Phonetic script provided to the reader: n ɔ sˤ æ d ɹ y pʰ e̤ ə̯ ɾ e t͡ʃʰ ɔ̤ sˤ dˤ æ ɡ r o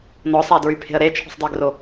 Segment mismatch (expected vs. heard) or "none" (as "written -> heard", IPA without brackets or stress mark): none